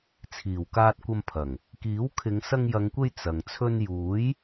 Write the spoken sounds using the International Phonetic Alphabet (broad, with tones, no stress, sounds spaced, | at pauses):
t͡sʰ iː˨˩ w k aː˧ t̚ kʷ ɐ˧ m pʰ ɐ˨˩ ŋ | k iː˨˥ w kʰ ɪ˨˧ ŋ s ɐ˧ ŋ j ɐ˨˧ ŋ kʷ e˧ j t͡s ɐ˨ ŋ t͡sʰ ɵ˧ n j uː˨˥ j